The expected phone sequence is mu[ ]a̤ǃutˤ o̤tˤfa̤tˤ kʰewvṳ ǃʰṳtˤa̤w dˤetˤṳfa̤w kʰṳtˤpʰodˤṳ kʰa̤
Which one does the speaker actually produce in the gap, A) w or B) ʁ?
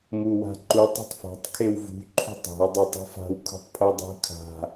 A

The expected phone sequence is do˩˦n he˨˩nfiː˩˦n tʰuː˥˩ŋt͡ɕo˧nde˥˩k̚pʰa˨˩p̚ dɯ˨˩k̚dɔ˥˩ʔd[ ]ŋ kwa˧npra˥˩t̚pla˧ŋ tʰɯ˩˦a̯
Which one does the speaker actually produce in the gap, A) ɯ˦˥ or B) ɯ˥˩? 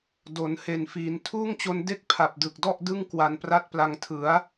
B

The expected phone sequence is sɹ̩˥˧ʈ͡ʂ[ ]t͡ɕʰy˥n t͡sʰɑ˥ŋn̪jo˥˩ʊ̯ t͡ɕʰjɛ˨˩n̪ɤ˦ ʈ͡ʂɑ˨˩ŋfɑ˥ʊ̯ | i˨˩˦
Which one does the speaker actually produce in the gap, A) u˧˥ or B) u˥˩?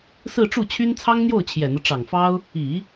B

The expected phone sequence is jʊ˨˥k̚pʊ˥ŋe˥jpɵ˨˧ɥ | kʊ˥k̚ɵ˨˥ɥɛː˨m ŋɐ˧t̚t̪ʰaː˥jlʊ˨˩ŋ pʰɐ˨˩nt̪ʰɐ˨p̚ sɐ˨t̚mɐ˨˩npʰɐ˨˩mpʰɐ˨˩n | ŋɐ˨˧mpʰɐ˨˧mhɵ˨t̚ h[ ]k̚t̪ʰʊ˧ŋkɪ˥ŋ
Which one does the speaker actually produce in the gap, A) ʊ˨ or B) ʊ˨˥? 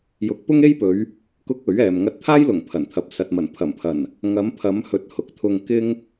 B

